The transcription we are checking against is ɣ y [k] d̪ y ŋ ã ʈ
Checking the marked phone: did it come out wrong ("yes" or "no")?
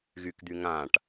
no